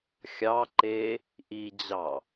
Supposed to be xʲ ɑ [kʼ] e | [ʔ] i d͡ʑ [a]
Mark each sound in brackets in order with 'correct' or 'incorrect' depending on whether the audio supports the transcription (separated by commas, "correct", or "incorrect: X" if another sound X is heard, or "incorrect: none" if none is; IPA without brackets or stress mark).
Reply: incorrect: ǃ, correct, incorrect: ɑ